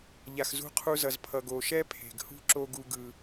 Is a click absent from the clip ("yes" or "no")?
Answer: no